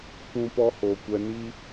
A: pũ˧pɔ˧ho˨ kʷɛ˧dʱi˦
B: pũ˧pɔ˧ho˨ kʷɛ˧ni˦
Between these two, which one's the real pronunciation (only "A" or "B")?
B